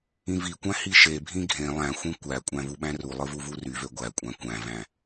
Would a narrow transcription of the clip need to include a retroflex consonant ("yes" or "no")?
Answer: no